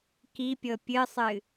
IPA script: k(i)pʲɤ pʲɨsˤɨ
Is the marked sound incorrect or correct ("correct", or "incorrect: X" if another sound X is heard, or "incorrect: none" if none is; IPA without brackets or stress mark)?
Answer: correct